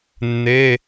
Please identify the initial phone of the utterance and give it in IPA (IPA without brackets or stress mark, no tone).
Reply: nː